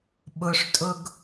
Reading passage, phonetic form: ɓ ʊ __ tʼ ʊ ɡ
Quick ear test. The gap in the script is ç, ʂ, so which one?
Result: ʂ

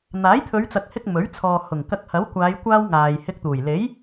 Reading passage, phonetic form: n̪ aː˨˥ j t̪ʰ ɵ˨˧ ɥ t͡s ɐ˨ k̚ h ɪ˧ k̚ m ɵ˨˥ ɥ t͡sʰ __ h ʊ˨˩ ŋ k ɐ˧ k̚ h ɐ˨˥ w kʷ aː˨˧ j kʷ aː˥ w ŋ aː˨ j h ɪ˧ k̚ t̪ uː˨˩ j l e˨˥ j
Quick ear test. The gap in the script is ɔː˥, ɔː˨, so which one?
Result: ɔː˨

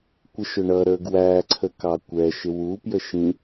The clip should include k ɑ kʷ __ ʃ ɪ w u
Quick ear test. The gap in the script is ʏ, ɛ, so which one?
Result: ɛ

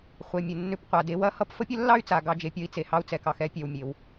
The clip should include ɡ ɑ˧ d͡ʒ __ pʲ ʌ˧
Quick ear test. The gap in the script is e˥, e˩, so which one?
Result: e˩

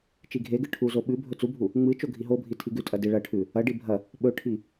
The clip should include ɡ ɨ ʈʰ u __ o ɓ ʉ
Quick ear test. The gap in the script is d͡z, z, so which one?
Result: z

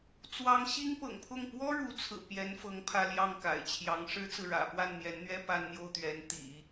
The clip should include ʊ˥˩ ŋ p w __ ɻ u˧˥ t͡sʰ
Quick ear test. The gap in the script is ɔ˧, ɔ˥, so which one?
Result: ɔ˥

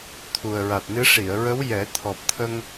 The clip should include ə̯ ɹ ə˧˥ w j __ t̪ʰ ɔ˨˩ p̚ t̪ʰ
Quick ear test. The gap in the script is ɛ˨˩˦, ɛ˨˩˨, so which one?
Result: ɛ˨˩˦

